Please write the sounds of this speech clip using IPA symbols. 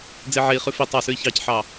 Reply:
d͡zeʕei̯χʉ fi tˤɑsʉi̯ çɑcħɑ

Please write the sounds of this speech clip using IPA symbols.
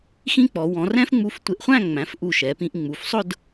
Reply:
xĩ˥k͡pɔ˩˧ wɔ̃˩˧rɛ̃˥fŋ͡mu˧f tʷɪ˧˩ʔχʷæ̃˥˧ŋ͡mæ̃˩˧fʔu˧˩ ʃɛ˩˧pĩ˧ʔ ŋ͡mu˩˧fsˤʊ˥˧d

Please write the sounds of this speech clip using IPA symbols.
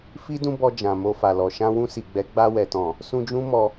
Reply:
fi˦dũ˦ bɔ˧d͡ʒã˨ mo˧fa˨lɔ˨ ʃã˧wũ˧si˨ɡ͡bɛ˨˦ ɡ͡ba˧wɛ˨tɔ̃˨ | sũ˧d͡ʒũ˦mɔ˧

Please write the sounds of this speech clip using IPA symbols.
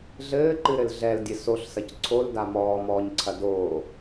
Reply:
ɮɘːǃɨɾɘl ɮɛldʲɘ soɬsɐc ǀʰolda mɔːmɔːɲǀʰɐ doː

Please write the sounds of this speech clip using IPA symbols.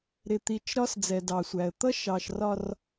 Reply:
ɾɪ˨t̪i˨t͡ʃ ɾɒ˦sd͡zɛ˨dɑ˨ sʷæ˨ə̯ t̪ʌ˦ʃɑ˨ʃ rɒ˨r

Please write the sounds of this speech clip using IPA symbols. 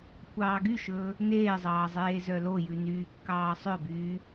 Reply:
kʷʰɑːɡyʃɵː | neːzˤɑː zˤeːzœlojʉ nyːkːɑːsˤœbyː

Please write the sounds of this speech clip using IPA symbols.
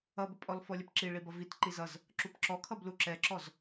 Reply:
ʌbəpʼɔl fɔlʲəpǁi ɭibʌvit ǃizʌz | ǁupǁɔkʰʌblu ǁɛǁɔz

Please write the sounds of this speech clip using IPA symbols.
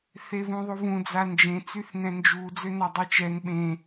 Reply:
θevũðˤuvũ d͡zand͡ʒẽ t͡syθnɛ̃nd͡ʒu d͡zønadˤet͡ʃɛn ɓẽ

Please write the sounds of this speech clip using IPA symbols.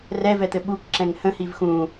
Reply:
rɛvɛt̪ɘ ɓukǁɛ̃ŋ hə̃hiv xũ

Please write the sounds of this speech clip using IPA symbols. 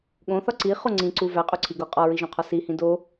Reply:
ɠõθɒ ǀiχo ŋ͡ǀĩǀu væqʼuǀʰiɡo qʼɒɹiʒõqʰɒ sihĩ do

